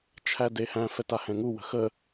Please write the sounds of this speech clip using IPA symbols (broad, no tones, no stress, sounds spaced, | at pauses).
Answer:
t͡ʃʰ æ d e h æ̃ f ɛ t a h ɛ̃ ŋ u w ə̤ x ə